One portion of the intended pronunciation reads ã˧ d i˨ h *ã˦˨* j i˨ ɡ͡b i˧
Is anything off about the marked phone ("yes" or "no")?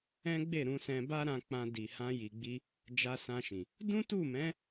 yes